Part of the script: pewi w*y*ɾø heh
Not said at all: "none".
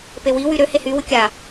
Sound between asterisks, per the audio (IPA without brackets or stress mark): y